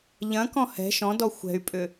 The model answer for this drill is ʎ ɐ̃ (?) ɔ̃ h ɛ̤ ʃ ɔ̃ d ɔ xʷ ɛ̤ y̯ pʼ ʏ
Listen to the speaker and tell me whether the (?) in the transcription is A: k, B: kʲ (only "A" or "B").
A